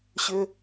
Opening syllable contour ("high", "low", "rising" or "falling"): high